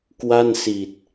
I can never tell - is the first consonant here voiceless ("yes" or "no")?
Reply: yes